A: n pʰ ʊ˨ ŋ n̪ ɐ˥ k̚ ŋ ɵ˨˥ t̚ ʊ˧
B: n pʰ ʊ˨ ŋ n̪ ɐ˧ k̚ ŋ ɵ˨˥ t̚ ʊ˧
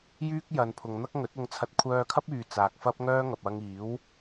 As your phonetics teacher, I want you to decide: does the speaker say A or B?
A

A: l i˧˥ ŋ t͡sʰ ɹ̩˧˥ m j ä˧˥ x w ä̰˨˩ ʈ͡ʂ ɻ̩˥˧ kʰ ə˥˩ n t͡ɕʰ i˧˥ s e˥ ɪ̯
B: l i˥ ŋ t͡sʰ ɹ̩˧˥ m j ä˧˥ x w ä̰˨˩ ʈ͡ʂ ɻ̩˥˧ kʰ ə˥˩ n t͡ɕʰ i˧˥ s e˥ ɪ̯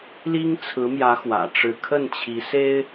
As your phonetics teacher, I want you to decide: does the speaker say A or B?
B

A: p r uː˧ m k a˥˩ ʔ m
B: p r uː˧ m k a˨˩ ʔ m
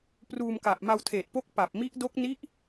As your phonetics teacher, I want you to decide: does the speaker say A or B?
B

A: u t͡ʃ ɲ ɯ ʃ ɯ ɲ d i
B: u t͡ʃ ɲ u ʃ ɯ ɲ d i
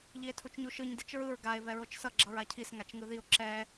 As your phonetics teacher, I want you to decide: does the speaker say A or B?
B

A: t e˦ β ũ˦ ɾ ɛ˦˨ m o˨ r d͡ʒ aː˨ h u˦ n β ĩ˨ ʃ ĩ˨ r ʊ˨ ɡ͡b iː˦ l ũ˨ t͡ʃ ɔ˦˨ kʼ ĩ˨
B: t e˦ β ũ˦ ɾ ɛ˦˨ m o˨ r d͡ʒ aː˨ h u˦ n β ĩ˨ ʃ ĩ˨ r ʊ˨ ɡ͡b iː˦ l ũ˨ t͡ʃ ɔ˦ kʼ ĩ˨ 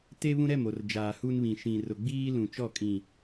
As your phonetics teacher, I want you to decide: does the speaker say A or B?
A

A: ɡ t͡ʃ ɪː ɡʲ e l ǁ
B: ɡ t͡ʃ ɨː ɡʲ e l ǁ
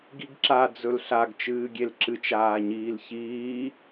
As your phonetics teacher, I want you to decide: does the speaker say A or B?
B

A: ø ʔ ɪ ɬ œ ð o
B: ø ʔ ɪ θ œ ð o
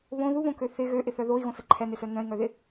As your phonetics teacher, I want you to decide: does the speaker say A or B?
B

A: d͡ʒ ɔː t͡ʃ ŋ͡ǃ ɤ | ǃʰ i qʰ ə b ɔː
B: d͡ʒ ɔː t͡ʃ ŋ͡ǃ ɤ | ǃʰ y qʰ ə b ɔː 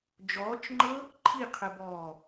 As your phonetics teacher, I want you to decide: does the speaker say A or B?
A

